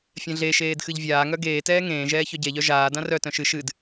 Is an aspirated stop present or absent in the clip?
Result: absent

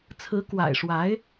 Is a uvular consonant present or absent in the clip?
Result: absent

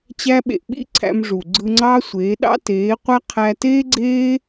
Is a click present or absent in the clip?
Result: present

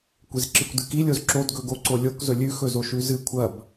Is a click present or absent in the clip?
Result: present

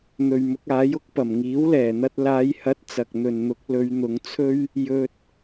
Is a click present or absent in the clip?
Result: absent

